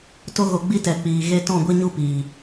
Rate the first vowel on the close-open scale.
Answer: mid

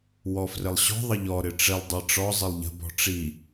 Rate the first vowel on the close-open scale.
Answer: mid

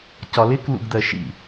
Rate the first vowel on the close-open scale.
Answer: open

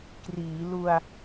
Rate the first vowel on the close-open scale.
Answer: close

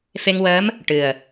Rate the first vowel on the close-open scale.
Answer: mid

